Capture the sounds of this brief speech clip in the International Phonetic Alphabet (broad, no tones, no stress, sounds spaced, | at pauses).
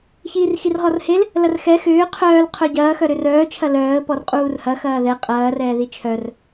ç iː r x i r ʁ ɔ r h e l | l ɐ r x ɛ x ʏː qʰ œː l qʰ œ ɟ ɐː x œ ɾ ʏ r œː t͡ʃʰ ɐ l œː ə̯ p ɔ r qʼ uː r h ɐ x ɐː ð ɛ qʼ ɐː r ɛː ð i t͡ʃʰ œ r